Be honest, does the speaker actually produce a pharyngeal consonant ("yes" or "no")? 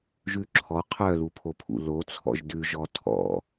no